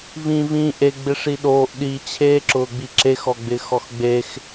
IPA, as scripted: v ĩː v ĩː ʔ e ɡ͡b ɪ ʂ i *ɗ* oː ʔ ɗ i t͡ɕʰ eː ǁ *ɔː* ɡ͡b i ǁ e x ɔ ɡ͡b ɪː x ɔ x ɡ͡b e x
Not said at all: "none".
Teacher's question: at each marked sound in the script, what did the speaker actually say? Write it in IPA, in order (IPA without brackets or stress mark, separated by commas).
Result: ɗ, ʊː